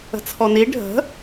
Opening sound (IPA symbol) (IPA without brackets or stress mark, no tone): ə̤